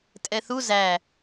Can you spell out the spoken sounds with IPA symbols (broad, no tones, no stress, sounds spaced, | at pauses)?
tʼ ɛ θ u z æ